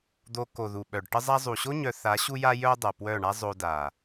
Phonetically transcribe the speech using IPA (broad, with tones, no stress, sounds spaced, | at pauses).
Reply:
d̪ o˧ k o˨ ð u˨ ɓ œ˨ ɖ ʈ ə˧ zˤ a˧ zˤ u˨ ɕ o˦ ɲ œ˧ θ a˨˦ ɕ u˧ j a˧ j œ˧ dˤ œ˨ p w œ˦˨ ɳ a˦ zˤ o˧ d a˨